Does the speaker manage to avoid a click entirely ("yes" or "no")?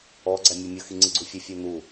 no